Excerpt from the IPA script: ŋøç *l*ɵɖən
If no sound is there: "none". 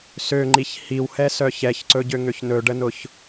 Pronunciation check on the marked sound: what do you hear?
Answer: n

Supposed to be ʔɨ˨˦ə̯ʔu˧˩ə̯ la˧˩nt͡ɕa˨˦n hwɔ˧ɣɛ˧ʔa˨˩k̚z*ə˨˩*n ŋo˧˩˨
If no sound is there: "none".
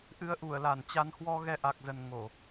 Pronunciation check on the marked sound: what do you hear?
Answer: ə˨˩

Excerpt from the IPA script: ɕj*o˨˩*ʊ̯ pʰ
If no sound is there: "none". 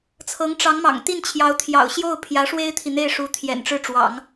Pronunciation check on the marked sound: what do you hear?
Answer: o˥˩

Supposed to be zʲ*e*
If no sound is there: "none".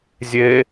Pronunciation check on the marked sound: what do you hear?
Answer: e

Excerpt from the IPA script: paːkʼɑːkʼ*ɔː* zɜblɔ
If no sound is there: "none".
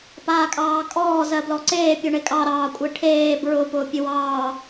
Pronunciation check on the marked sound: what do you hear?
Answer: ɔː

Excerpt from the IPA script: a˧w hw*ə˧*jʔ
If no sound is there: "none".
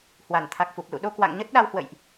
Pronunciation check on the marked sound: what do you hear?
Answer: ə̰˧˨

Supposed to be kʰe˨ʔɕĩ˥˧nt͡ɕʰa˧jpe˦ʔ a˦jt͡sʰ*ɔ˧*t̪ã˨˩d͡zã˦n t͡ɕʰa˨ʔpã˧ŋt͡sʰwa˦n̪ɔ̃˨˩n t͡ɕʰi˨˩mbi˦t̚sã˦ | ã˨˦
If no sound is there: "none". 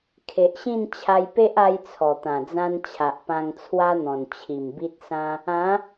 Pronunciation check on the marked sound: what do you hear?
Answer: ɔ˨˩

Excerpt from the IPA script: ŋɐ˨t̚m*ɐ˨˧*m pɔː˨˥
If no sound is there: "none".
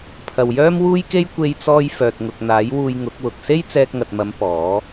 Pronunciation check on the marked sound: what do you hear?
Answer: ɐ˨˧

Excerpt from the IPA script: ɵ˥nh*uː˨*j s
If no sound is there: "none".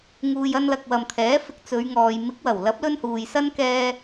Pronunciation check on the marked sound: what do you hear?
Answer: uː˨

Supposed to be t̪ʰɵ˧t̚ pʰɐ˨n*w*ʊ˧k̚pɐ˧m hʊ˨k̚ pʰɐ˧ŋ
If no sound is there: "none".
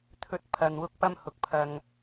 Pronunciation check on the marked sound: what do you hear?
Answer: w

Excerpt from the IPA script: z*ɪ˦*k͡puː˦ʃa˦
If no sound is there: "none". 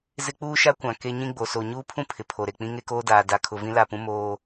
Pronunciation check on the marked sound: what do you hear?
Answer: ɪ˦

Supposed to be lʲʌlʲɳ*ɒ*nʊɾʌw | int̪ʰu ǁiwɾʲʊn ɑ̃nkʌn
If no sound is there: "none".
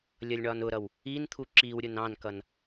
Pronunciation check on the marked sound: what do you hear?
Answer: ɒ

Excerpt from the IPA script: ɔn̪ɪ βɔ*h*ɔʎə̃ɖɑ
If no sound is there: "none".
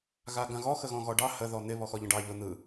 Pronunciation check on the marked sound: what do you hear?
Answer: x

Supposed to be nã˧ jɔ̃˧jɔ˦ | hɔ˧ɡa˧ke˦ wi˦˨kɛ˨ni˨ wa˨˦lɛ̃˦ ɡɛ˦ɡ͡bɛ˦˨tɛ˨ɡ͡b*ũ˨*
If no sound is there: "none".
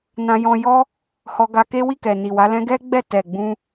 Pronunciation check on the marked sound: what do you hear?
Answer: ũ˧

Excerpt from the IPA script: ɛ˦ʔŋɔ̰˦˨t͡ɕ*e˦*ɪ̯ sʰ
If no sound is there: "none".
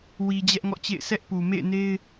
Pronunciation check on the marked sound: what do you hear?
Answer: ḛ˦˨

